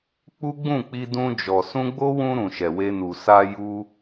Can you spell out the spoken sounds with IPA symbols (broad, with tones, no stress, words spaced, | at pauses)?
k͡pu˦ɡ͡bũ˦˨k͡pi˧ dũ˧d͡ʒɔ˨ sũ˧ɡ͡bo˦wũ˧ ɾũ˨ʃɛ˨we˧nu˨ sa˧ ju˧